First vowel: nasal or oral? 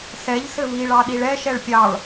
oral